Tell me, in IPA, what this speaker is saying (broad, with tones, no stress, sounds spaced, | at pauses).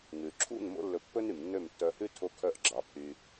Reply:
ŋ ʉ˩ ǁʰ ṵ˥˩ n m o̰˥ lː ɵ˧ pː ɵ˥ n y˩ m nː ø˥˩ m tː œ˧ h ʉ˥ tʰ o˧ kʰ œ˧ ʔ ɡ͡ǁ ɑ˩˥ pʰ y˧